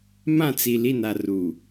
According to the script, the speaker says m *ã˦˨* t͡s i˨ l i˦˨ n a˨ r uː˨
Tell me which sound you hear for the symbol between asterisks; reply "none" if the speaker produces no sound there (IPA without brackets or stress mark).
ã˦˨